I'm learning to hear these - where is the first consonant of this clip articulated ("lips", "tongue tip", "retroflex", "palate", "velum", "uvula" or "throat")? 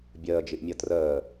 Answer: lips